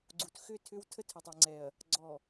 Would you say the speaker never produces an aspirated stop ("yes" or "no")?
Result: no